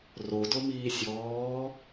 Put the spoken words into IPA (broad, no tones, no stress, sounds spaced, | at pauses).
r o d o m iː sʲ ɔː